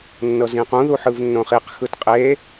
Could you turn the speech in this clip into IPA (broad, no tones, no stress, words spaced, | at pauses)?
nːɤzĩqũ ðuħɯvnːõχiq xɯtqʼe